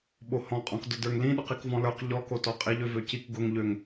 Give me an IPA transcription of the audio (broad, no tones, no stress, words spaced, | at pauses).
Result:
ɓohɔ̃qʼɔ̃k dʊdə˞ŋlĩ ɗʊqikvɔ̃lə˞q ʎɔkotɔ qʼiʎøvøcik ɡʊŋʎøŋ